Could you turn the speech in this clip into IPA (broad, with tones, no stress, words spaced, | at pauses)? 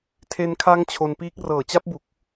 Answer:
tʰe˧nkʰa˦˥ŋ t͡ɕʰo˧npiː˦˥k̚ rɤː˨˩t͡ɕa˦˥p̚bu˨˩k̚